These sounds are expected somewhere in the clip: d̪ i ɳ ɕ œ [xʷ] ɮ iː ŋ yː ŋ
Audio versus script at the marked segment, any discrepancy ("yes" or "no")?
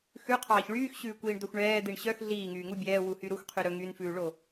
yes